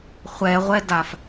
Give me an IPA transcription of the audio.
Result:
χʷ ɛ ʁʷ ɛ d a f

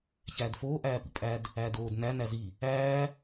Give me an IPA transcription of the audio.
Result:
ç æː d f oː ʔ æː p ḭ pʼ æ d | æː d oː d n æ n æ z i | æː

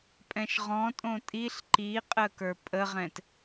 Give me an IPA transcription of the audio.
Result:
pʼ ɛ̃ ʃ ʁ ɔ̃ tʼ õ tʼ i ɬ ǃ i qʼ ə k ə˞ pʼ ə ʁ ɛ̃ t

